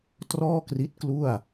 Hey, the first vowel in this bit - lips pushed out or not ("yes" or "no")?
yes